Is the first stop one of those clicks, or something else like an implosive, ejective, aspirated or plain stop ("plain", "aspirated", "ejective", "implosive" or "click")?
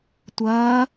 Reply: plain